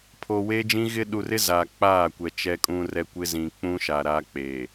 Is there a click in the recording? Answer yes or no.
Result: no